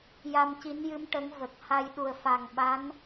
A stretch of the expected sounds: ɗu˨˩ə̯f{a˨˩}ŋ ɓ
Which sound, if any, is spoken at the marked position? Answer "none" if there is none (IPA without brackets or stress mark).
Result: a˨˩